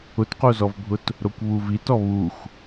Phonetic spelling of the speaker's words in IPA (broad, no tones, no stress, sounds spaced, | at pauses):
ʊ t q o z ɔ v bʱ ʊ t | ɾ o kʷ β u v i t ɔ β u xʷ